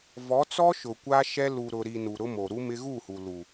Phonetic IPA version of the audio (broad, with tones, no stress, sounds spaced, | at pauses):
v ɔ˨˦ t͡s ɔ˦ ʃ ʊ˨ kʷ a˦ ʃ ɛ˦ l u˨ ɾ ʊ˨ ɾ i˨ n u˨ ɾ ʊ˦ m o˨ ɾ u˦ m ɪ˦ ɣ u˦˨ h u˨ l u˨